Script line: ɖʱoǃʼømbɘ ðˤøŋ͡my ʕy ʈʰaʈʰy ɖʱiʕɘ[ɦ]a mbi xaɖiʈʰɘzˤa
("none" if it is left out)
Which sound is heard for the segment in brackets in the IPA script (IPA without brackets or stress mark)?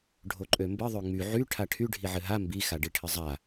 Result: ɦ